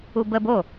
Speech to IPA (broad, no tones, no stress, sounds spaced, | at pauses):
u b ə b o